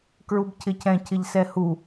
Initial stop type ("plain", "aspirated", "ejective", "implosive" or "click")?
plain